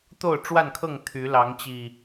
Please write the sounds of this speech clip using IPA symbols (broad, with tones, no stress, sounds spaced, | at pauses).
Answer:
t̪ o˥˨ ʊ̯ ʈ͡ʂ w a˥˨ n kʰ ɤ˥˨ ŋ t̪ʰ y˨˦ l ɑ˨˦ ŋ t͡ɕ i˨˩